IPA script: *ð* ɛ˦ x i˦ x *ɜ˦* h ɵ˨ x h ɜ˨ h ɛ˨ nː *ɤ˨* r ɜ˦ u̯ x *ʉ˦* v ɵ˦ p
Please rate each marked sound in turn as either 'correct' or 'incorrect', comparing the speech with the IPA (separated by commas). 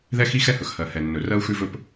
correct, incorrect, incorrect, correct